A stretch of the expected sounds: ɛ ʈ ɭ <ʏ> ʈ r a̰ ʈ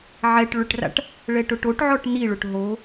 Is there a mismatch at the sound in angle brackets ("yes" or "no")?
no